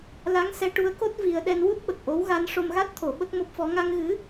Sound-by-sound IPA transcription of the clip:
la˧˥ŋ sɛ˧˥ʈu˧˥ə̯ko˦˥t̚ vi˧ə̯ ɗɛ˧nwu˦˥t̚ɓə˨˩k̚ʔo˧˥w ɣa˧˥n ʂo˧mɣa˦˥t̚t̪ʰo˨˩˦ ɓə˦˥k̚mo˦˥p̚fɔ˧˥ ŋa˧ŋɣɨ˧˥

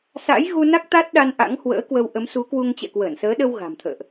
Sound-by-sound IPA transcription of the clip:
sa̰˧˥jɣu˧na˦˥k̚ t̪a˦˥t̚ɗa˧n ʔa̰˧˥ŋhwə̰ː˧˥kwə˧w ʔə˨˦msu˨˦kwu˧ŋ t͡ɕɛ̰˧˨kwəː˧˩nsəː˨˦ɗə˧w ɣa̤˨˩mt̪ʰə̰ː˧˨ʔ

